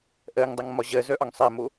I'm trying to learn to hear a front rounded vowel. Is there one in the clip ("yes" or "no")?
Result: yes